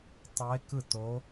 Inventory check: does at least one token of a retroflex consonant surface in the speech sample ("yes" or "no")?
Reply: no